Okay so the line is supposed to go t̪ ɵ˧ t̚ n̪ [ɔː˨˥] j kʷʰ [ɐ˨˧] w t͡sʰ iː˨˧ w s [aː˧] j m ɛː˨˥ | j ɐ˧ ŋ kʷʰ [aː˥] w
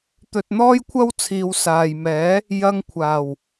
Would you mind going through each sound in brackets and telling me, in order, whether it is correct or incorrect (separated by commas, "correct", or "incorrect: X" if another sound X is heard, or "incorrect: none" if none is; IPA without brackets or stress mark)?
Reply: incorrect: ɔː˥, incorrect: ɐ˥, incorrect: aː˨, incorrect: aː˨˩